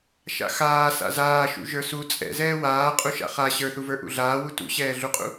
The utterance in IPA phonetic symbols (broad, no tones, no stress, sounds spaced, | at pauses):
ʃ a̰ x aː s a̰ z aː ʃ ṵ ʒ ə˞ s u t͡sʼ ɛ̰ z ɛː w aː qʼ u ʃ a̰ χ a ɕ ə˞ θ u v ə˞ ʔ ṵ ɮ aː w u t ṵ ɕ ɛː ɮ u qʼ ṵ